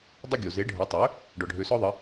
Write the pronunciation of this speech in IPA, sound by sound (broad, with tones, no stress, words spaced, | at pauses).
dˤɪ˧ ɡʲo˩ ze˩˥ɖʱə˩˥ tˤø˩˥ | ɖɔ˩ɖʱø˩˥sɔ˥ðˤə˩˥